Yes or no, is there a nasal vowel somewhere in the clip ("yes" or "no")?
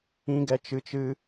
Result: yes